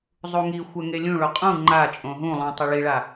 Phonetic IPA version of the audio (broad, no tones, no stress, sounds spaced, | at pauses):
zˤ u ŋ i xʷ ɛ ŋ e lʲ ũ ɭ o qʼ ũ ŋ͡ǃ a t͡ʃʼ õ ɦ ũ lˠ ũ tˤ ʊ ɭ i ɭ a